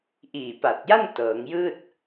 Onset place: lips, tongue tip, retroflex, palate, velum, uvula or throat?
throat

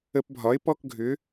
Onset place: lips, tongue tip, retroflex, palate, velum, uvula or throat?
lips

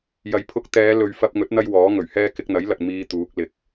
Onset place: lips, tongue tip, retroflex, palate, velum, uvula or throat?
palate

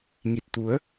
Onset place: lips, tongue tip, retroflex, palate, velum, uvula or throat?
velum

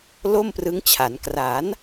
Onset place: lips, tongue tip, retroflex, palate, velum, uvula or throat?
tongue tip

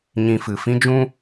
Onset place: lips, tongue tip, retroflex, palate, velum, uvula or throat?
palate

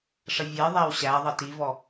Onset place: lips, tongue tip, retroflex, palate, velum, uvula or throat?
retroflex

